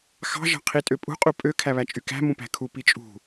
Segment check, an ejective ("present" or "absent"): present